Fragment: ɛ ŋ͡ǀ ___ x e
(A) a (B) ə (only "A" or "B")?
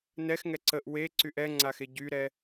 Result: A